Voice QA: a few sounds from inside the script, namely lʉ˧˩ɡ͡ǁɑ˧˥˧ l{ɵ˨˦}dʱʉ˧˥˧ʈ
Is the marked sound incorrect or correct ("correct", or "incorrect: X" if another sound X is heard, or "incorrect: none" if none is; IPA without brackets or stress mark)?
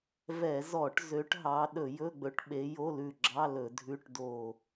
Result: incorrect: ɵ˧˩˧